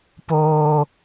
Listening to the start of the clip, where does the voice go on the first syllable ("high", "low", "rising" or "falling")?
high